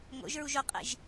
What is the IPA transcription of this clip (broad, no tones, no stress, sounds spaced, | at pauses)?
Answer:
ŋ o̰ ʒ ɹ u ʒ o qʼ ḭ ʒ